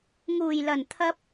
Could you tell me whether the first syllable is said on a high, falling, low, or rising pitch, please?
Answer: low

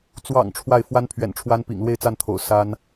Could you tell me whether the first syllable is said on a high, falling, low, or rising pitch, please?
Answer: low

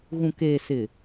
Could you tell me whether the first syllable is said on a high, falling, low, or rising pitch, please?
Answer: low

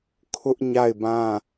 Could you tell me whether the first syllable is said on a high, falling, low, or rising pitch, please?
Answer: high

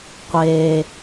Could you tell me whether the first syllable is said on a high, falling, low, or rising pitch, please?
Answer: low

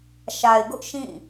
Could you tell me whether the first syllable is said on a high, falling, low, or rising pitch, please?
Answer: low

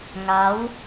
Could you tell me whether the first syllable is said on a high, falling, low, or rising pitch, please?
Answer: rising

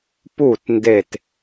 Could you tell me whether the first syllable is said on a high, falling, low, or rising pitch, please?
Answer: falling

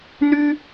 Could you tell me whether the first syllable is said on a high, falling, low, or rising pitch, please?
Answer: high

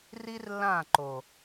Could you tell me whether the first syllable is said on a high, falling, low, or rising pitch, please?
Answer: high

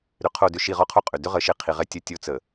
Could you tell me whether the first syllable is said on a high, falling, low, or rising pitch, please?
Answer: low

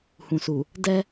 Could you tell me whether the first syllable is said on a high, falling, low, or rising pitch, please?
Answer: low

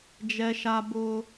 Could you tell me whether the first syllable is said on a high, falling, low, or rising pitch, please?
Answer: high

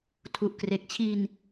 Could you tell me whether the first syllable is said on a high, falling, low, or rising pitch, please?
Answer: low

